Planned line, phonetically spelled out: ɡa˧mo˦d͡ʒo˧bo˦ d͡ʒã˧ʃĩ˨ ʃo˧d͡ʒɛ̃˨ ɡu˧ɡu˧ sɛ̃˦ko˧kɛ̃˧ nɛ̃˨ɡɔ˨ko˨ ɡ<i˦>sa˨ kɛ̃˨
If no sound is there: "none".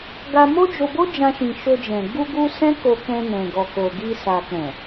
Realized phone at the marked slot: i˧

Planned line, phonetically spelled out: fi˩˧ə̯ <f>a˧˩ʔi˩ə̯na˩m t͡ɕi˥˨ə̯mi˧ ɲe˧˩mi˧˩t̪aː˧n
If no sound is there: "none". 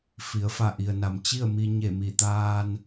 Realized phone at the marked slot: f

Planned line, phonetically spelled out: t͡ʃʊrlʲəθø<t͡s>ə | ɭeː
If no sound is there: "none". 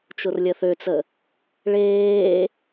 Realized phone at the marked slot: t͡s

